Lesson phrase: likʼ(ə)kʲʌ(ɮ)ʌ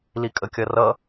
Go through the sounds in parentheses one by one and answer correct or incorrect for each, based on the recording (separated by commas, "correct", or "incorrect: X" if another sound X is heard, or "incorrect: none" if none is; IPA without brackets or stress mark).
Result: correct, incorrect: r